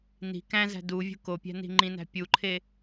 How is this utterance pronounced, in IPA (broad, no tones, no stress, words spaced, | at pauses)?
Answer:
ni̤ kæ̃zæ̤ du vʲṳkopʲæ̤ ni̤ŋ͡ǃĩnæ̤ pʲuǃʰe